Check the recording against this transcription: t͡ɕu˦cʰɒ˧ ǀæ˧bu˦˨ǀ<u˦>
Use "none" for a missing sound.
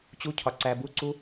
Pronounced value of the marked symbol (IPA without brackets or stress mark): u˦